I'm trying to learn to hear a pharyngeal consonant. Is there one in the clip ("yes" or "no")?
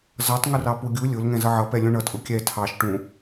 yes